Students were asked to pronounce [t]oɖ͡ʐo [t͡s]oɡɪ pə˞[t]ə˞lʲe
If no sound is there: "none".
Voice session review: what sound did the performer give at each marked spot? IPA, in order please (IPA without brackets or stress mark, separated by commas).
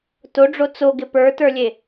t, t͡s, t